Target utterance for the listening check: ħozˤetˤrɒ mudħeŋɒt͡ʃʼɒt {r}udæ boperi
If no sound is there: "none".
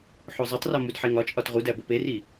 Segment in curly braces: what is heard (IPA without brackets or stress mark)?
ʁ